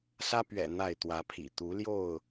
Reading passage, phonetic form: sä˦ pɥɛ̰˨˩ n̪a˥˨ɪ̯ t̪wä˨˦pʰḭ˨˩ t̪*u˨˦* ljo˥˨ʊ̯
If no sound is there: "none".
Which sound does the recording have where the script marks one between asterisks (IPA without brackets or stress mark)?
u˨˦